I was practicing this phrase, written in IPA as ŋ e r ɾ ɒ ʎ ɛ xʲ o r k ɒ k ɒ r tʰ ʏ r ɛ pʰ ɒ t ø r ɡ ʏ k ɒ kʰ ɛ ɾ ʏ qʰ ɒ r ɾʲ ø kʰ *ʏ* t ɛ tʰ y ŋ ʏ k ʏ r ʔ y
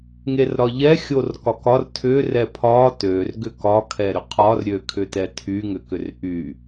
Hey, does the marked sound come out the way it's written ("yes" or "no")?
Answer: yes